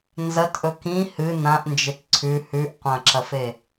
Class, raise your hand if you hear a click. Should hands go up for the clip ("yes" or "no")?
yes